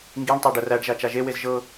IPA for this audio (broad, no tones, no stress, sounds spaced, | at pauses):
ŋ ɡ i ɳ tˤ æ ɖ ə r æ ɖ ʒ a t͡ʃ a ʒ e w e z ʒ ɤ